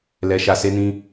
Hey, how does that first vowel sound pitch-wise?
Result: low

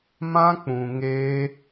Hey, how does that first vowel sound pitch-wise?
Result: high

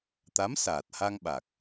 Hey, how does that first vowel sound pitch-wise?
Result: rising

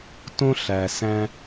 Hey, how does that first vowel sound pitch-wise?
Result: high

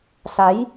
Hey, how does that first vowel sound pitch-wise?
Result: rising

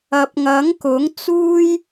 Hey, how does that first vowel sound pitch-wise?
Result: rising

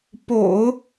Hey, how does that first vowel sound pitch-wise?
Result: low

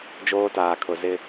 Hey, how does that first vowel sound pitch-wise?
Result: high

